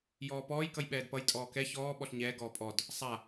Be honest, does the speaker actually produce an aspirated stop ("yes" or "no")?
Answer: no